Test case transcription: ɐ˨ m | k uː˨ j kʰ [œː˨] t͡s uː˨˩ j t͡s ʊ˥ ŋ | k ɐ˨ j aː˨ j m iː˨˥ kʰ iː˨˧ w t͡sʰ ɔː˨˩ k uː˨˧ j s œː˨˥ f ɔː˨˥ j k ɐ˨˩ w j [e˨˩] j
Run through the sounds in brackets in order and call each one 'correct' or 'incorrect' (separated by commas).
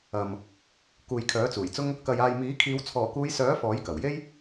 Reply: incorrect, incorrect